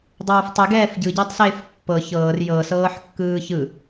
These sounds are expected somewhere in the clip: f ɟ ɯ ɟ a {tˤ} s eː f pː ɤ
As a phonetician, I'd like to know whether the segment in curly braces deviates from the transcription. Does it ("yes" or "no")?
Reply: no